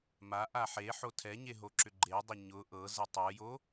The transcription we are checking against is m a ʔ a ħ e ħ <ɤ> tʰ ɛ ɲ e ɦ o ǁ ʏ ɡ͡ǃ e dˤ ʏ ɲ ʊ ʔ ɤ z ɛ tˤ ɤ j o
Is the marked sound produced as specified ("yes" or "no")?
no